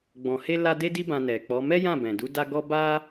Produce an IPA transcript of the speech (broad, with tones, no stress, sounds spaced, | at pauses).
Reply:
ɡ͡b ɔ̃˧ h e˦ l a˦ d e˦ d i˦ b ã˧ n ɛ˨ k͡p ɔ˨˦ m ɛ˦ j ã˦˨ b ɛ̃˨ d u˨˦ d a˦ ɡ ɔ˦ b a˦